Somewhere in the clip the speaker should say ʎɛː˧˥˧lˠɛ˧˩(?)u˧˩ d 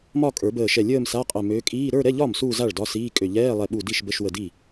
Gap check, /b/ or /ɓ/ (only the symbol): ɓ